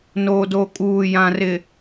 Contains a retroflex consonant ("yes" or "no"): no